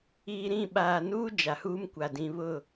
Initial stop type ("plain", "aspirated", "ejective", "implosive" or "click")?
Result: implosive